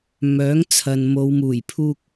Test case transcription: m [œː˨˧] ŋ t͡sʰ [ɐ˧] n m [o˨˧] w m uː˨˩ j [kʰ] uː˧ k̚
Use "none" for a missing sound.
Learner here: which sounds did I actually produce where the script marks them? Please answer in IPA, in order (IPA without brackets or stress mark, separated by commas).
œː˨˥, ɐ˨, o˨˧, pʰ